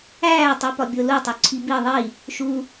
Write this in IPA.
æː tˤ u p ɒ bʲ o l u tˤ u ǀʰ i b i ðˤ i | ʃ u

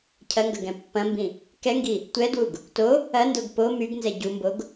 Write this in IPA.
cʰ ɐ ŋ ɡ ɐ ɡ ɛ̃ pː ɐ̃ m b ĩ | k ɛ ŋ ɡ i | tʷ ɛ d w u ɡ | t o | ɐ n d o ɡ p o m y ɡ n z ɛ ɟ u m b o ɡ

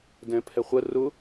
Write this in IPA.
d ɛ̃ pʰ ɛ χʷ ə r ʊ

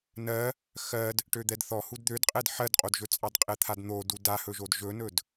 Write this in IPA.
n ɜ | x ɜ d | ʈ ø d̪ ɛ d θ ɔ h u d d̪ ø d qʼ ɛ d ħ ɜ d qʼ o d ʒ ɵ t͡sʼ ɑ d qʼ ɛ t̪ʰ a d n̪ o d u d a h ɵ ʒ o d ʒ ɵ n ɵ d

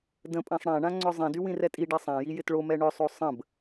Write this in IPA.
d ə̃ pʼ ã sˤ ɽ ã ɳ ã ŋ͡ǀ œ zˤ ĩ d y w ĩ r ɛ tʼ i ɖ ɛ sˤ ã j i j ɪ t ɭ o m ɛ ɳ œ sˤ o sˤ ə̃ b

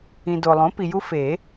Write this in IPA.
ĩ˨ d o˨ lˠ õ˩˥ p i˨ j u˦ f e˨˩˦

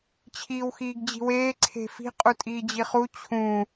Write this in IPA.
t͡ɕʰ iː w x iː ɡ d͡ʑ i̤ w eː ǀʰ e̤ f i̤ qʼ u tʼ iː d͡ʑ i χ u t͡ɕʰ ũ

